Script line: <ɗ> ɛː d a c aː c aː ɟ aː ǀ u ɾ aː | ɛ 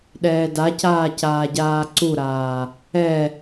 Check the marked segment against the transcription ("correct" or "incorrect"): correct